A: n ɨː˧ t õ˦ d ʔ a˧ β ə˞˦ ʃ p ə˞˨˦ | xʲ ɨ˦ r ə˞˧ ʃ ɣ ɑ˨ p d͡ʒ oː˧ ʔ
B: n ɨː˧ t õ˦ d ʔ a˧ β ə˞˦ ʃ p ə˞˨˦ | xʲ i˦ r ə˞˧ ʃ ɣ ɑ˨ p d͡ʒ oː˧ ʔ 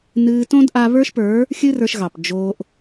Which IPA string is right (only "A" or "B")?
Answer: A